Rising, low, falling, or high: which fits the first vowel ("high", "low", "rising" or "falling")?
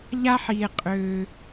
high